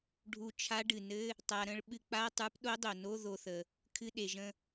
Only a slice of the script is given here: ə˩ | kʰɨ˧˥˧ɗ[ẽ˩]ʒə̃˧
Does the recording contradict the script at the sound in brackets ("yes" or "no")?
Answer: yes